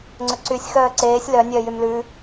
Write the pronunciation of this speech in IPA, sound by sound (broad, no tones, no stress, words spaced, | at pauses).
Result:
ŋ͡ǀɵǀysʲ xœːǀeːsʲ lœ nʲœːjymlʉ